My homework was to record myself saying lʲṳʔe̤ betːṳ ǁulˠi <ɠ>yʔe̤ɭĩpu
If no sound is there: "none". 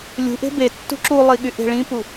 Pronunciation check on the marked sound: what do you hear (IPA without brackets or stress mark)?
ɠ